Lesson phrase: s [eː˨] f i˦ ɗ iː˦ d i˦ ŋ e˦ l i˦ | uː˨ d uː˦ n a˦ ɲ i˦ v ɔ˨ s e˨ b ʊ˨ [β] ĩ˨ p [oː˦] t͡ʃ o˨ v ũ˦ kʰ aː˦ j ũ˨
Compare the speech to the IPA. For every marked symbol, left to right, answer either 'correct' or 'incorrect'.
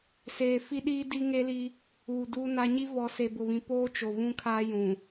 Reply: correct, correct, correct

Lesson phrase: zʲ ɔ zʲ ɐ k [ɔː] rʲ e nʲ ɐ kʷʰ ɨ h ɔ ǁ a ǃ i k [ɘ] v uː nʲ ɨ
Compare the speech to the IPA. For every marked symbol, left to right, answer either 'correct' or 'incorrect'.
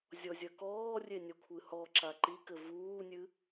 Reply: correct, correct

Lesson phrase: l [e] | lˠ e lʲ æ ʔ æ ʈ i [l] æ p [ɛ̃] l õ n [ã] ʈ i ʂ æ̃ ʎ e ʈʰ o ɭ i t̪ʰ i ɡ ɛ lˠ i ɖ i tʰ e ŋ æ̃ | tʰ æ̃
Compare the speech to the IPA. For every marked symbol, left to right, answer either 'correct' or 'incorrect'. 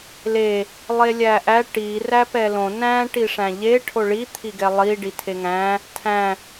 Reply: correct, incorrect, incorrect, incorrect

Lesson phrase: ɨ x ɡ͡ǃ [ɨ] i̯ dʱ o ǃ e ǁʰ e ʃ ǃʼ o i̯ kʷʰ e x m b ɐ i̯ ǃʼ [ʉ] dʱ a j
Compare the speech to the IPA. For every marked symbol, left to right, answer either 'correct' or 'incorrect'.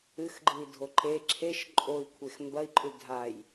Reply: correct, correct

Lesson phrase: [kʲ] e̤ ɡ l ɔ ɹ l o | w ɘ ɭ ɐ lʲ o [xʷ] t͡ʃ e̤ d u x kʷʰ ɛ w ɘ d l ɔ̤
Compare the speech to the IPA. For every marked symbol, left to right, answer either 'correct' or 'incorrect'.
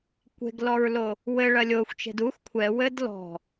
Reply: incorrect, correct

